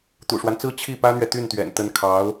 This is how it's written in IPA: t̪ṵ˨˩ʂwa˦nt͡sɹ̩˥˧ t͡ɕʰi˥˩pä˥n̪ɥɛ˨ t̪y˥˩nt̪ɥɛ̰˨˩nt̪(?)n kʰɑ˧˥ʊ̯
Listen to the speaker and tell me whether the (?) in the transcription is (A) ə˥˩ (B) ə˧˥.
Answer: B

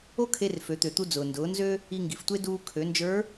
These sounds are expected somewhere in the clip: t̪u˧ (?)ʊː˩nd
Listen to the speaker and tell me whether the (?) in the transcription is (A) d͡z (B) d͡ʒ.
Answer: A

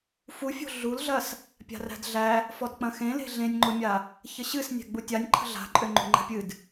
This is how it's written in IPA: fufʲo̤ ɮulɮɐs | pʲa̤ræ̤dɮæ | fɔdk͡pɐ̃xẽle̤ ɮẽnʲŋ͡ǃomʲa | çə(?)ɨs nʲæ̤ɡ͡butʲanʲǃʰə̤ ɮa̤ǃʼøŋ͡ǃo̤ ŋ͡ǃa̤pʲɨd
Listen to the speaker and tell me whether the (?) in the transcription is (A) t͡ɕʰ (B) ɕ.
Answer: B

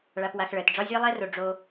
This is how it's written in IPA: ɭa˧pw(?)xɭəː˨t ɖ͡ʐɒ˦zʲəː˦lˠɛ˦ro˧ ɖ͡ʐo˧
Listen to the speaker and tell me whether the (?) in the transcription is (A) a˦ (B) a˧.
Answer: B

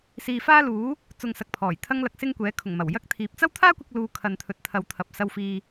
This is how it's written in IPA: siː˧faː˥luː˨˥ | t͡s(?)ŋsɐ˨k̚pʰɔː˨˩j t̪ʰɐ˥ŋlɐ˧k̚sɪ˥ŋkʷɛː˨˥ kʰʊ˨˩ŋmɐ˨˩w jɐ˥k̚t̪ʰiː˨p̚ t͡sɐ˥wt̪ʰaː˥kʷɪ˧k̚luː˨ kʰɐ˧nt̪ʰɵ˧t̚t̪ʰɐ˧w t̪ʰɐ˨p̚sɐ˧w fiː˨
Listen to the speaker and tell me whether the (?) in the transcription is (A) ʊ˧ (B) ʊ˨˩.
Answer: A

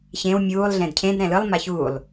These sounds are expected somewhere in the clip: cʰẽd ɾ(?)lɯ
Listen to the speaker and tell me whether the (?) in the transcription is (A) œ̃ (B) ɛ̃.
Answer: B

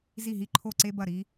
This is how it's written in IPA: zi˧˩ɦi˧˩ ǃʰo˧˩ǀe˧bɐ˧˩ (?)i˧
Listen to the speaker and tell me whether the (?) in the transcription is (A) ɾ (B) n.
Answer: A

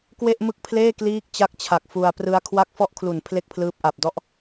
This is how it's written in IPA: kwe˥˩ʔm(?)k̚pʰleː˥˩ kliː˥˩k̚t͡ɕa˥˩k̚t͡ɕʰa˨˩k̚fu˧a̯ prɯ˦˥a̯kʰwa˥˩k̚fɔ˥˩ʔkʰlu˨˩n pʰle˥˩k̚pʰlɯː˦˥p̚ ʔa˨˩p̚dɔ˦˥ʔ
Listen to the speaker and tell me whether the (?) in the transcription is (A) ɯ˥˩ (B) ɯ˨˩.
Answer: A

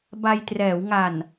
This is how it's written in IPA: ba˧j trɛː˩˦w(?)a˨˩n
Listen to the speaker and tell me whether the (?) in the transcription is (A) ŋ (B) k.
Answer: A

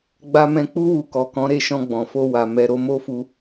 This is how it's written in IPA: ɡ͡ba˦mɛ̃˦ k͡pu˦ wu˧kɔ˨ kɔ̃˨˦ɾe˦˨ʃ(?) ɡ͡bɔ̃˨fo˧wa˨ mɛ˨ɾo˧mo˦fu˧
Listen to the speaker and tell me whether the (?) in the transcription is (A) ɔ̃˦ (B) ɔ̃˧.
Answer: B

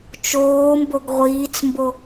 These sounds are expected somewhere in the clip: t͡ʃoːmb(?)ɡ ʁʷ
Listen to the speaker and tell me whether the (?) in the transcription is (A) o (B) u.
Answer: A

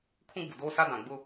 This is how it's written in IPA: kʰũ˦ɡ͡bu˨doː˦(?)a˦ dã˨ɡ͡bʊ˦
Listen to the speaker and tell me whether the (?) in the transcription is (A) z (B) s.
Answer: B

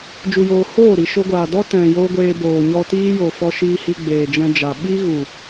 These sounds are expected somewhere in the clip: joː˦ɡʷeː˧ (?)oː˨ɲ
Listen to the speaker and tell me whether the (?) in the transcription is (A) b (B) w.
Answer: A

